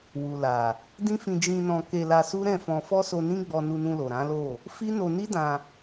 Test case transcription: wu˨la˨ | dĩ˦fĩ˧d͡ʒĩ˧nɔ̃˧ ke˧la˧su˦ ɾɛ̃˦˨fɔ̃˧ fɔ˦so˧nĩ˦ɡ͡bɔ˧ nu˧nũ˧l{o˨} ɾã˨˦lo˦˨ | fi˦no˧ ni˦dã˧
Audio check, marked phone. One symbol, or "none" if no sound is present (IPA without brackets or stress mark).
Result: o˨